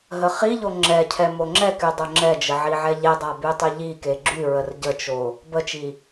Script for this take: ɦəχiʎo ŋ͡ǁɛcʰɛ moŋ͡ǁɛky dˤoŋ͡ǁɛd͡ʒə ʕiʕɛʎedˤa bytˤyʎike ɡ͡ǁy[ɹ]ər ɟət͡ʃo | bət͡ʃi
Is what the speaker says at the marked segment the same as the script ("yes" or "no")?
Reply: yes